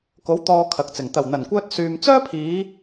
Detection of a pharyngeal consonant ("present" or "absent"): absent